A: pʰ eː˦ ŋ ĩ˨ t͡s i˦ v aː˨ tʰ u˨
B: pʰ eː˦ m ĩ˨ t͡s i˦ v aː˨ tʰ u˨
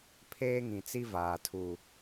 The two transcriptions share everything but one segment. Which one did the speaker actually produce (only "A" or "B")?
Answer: A